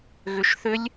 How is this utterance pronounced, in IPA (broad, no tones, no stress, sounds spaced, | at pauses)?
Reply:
ɣ ʏ ʃ θ ʏ lʲ